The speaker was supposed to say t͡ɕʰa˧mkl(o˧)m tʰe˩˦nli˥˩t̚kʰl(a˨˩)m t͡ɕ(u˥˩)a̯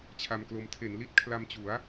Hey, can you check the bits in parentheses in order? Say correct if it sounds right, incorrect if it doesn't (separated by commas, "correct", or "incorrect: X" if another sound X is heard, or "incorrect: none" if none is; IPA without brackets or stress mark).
correct, incorrect: a˧, incorrect: u˩˦